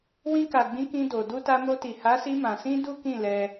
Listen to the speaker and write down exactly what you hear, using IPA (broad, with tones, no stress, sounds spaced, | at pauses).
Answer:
w ĩ˧ k a˨ ɡ͡b ĩ˨˦ k ĩ˧ d o˨ d u˧ t a˧ m o˧ t i˨ h a˨˦ s i˧ m ã˨ s ĩ˧ d u˦ k ĩ˦˨ l ɛ˧